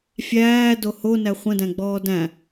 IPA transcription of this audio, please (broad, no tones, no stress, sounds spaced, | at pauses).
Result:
fʲ æː d o h o n æ χʷ ə̃ d æ̃ ɡ͡b ɔː d æ̃